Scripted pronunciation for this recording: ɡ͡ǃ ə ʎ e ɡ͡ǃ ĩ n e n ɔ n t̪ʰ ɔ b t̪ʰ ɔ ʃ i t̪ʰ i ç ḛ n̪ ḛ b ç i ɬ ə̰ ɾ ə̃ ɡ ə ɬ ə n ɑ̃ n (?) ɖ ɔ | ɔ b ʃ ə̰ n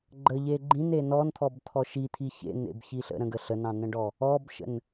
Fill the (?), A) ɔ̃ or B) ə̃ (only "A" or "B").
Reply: B